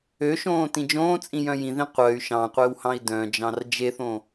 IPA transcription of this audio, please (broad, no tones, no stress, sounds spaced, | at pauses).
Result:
ø ʃ õː t ĩ d͡ʒ õː t͡sʼ ĩ j œ̃ j ĩ ð ĩ qʷ œ y̯ ʃ ɑ̃ qʷ e w h ɑ̃ i̯ d œ̃ d͡ʒ ɑ̃ r d͡ʒ e θ õ